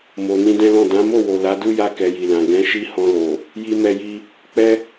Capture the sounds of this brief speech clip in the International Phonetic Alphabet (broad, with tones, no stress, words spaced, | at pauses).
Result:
mo˨ nĩ˧dɛ̃˦lɔ̃˦˨ dã˨˦mo˦˨wo˨ la˨˦du˦ja˦˨ kɛ˧ji˨lã˨ ɡɛ̃˨˦ ʃi˦hɔ̃˧lo˨ | ji˧mɛ˧ji˧ | k͡pɛ˦